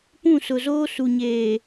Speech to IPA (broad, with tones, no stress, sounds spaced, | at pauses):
p ũ˦˨ s ʊ˨ z oː˦ s u˨ ɲ eː˨